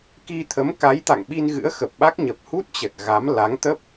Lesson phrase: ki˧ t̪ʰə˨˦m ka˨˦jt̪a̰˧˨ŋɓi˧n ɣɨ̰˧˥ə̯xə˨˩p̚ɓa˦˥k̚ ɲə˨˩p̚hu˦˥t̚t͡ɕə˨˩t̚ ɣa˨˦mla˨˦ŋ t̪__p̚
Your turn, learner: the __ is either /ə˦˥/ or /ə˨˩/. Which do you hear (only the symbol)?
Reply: ə˦˥